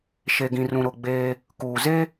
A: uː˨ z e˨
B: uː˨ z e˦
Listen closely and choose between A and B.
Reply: B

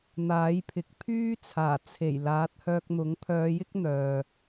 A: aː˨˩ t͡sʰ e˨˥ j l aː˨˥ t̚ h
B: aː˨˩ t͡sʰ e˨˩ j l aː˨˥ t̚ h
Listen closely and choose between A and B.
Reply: B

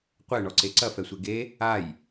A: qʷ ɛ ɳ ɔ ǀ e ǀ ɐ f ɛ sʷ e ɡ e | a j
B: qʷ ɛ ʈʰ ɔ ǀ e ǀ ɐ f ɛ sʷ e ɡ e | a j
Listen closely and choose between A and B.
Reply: A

